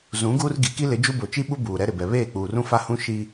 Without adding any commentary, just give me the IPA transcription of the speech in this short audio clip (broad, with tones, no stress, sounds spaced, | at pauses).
z ũ˨˦ ɡ uː˦ r ɡ i˨ k i˦ l ɪ˨˦ d͡ʒ u˦ b o˨ t͡ʃ i˦ ɓ u˦ b uː˨ ɾ ɛ˦ ɾ ɪ˨ b ɛ˨ β eː˦˨ k͡p uː˨ r ũ˦ f a˦ h ũ˦ ʃ i˦